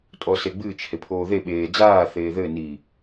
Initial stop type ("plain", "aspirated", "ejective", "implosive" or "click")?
ejective